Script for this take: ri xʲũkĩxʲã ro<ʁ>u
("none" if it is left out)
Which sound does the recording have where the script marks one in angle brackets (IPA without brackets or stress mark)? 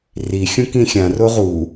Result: ʁ